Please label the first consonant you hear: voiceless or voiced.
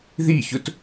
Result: voiced